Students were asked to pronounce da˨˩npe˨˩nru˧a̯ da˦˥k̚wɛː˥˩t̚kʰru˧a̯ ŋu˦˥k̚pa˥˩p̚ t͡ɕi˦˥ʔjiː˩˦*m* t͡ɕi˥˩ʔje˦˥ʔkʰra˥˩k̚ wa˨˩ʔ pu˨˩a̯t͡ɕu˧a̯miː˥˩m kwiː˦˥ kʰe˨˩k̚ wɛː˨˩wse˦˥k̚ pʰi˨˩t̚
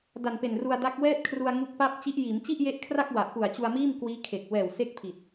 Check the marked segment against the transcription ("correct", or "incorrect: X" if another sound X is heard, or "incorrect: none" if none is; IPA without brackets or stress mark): correct